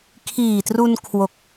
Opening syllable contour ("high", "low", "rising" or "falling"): low